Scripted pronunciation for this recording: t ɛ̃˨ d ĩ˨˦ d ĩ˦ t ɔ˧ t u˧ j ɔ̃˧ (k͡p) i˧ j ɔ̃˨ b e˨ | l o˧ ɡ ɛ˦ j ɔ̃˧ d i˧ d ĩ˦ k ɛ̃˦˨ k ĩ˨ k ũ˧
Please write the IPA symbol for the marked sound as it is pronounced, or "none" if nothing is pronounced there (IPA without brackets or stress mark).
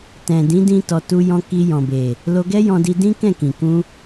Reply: k